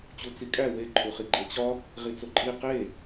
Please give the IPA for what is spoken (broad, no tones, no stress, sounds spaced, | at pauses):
t͡ɕ u t͡s i kʼ æ w e ǃʰ u χ i ɡ͡ǃ e t͡ɕ ɒ | ʁ i t͡s o ǃʼ i q e